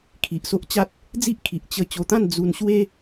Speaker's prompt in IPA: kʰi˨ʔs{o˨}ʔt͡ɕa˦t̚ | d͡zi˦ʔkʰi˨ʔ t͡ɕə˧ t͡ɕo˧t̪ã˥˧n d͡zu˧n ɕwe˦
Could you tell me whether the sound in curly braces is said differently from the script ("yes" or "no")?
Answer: yes